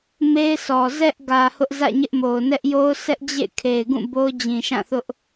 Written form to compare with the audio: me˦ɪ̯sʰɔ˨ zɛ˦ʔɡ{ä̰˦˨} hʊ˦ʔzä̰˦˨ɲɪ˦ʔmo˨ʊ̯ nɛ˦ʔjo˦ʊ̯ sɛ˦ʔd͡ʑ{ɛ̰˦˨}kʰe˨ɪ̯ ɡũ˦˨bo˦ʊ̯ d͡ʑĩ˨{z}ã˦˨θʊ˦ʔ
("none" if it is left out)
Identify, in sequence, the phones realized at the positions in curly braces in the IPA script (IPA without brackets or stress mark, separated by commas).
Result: ä˨, ḛ˦˨, ʃ